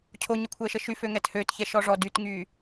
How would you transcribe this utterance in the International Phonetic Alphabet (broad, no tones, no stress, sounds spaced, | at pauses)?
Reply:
cʰ o ɲ ə kʷʰ əː ʃ ə ʃ y f ø ŋ ɛ t h ø t ç ɛ ʃ ɔ ʐ ɔ d y t ŋ yː